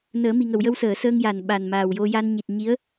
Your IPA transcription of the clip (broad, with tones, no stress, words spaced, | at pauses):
nəː˨˩˦mi˨˩ŋə˨˩˨w jə˧wsəː˨˩˨səː˧ŋja˨˩˨n ɓa˨˩nmaː˨˩wjo˧ja˧n ɲi˨˩t̚ ɲi˧˥ə̯